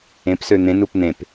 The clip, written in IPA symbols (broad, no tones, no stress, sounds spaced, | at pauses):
ẽ p s ø n̪ ẽ n u p n̪ ẽ p